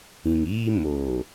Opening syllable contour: low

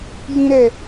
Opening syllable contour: high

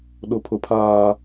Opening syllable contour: low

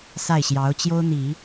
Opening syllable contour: falling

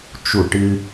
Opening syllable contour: falling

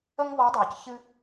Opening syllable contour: high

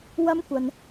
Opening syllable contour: high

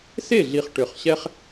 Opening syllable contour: falling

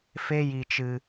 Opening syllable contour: high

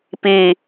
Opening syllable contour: falling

